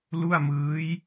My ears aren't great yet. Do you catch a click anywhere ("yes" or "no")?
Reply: no